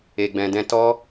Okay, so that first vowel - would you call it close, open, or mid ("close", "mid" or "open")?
mid